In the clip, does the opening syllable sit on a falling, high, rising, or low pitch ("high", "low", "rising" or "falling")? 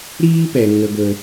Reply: high